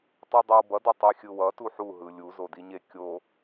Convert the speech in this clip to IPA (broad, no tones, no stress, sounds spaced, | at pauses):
tˤ i dˤ i w b ʌ d ʌ tˤ i xʲ ɯ w ʌ t u ħ u ɦ ɯ lʲ u z o d i ɲ e kʲ o